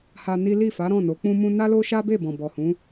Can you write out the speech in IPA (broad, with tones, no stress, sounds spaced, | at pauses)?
h a˧ n i˦ l i˦˨ f a˨˦ ɾ ɔ̃˦˨ n o˨˦ k͡p ũ˦ m ũ˦ n a˦ l o˦ ʃ a˦ b e˦˨ b ɔ̃˨ b ɔ˨ h ũ˨˦